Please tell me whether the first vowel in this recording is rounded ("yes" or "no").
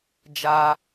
no